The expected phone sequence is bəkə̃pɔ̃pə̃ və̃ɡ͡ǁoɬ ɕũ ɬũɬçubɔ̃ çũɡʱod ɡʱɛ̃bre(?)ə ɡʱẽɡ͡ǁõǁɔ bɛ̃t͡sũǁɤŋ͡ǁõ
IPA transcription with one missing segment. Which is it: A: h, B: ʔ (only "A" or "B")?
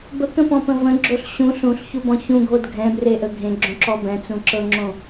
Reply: B